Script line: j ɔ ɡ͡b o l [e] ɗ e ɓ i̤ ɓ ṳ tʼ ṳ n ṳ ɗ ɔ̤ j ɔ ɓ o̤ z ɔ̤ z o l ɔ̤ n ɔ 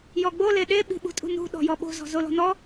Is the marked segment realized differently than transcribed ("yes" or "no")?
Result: no